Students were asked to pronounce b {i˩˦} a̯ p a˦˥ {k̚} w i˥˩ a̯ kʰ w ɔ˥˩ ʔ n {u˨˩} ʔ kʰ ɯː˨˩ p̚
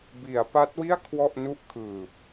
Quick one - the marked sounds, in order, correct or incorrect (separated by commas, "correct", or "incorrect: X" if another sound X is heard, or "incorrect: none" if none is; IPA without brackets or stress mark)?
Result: correct, incorrect: t̚, incorrect: u˥˩